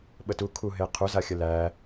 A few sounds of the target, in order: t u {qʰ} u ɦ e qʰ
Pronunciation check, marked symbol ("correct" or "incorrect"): incorrect